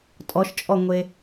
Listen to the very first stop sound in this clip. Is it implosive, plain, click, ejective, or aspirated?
ejective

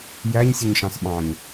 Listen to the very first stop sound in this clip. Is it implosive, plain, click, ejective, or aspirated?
implosive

